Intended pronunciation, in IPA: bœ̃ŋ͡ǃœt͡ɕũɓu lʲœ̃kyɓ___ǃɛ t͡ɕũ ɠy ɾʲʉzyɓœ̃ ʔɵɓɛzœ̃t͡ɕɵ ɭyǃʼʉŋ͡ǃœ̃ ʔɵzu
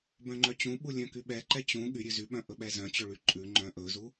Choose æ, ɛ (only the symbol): ɛ